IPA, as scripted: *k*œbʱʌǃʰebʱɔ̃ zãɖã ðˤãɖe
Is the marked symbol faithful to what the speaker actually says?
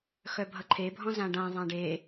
no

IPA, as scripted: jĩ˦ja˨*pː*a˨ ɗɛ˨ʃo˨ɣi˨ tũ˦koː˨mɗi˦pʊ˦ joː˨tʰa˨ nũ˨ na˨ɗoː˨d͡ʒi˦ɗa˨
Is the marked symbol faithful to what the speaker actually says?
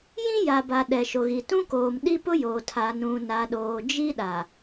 no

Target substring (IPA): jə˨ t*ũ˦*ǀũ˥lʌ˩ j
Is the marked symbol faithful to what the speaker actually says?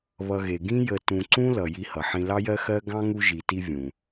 no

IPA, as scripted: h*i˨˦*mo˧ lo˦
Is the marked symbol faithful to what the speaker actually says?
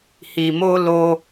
no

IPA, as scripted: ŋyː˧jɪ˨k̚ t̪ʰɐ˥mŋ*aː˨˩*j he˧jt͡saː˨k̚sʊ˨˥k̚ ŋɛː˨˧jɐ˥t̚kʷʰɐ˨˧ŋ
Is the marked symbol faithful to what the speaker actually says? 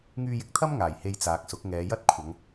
yes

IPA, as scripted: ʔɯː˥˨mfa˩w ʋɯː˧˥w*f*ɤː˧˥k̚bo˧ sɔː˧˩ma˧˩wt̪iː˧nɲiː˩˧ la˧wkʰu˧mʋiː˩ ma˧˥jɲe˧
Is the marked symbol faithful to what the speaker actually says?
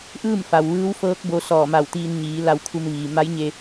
yes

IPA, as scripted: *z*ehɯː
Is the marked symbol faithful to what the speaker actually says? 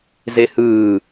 yes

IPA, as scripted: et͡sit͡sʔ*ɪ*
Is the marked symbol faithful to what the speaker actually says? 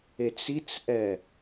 no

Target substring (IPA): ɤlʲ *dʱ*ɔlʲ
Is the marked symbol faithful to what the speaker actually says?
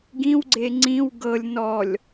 no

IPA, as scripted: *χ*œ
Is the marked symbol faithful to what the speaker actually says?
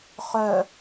yes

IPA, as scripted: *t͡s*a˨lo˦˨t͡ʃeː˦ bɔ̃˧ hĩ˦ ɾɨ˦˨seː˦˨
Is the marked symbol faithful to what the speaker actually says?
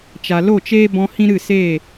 no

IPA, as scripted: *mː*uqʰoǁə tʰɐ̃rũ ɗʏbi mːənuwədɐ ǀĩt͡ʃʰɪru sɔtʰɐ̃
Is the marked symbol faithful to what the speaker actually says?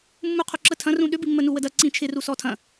yes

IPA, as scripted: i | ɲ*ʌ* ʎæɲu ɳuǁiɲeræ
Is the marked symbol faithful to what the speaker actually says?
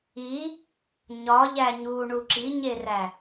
no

